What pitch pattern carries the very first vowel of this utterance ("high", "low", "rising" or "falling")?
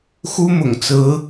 high